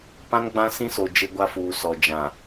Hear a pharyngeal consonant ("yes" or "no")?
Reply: no